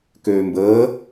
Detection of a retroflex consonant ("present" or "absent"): absent